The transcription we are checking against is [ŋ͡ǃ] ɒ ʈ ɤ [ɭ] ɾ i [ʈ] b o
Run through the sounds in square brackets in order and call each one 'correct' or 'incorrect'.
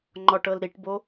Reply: correct, incorrect: l, correct

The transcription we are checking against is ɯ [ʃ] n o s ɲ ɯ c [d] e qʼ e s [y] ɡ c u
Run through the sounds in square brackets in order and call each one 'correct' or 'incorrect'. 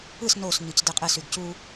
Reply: incorrect: s, correct, correct

